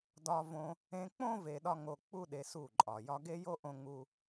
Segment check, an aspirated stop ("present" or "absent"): absent